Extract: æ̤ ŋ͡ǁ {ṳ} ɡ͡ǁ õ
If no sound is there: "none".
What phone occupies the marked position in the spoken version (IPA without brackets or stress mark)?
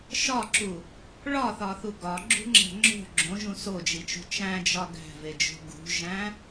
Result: o̤